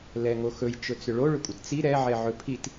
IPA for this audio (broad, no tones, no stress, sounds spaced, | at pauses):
l ɛ ŋ o x ɵ j t͡ʃ ɵ t͡s ʏ ɭ o ɭ ʏ kʷʼ ə t t͡s i ɾ ɛ ʕ ɛ ʕ ɵ pʰ i t